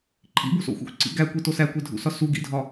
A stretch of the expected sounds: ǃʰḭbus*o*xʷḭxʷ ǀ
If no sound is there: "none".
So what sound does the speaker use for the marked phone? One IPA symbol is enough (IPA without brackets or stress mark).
o̰